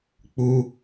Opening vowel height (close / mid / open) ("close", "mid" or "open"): close